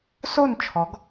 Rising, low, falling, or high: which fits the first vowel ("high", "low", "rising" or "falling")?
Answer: falling